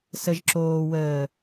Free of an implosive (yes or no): yes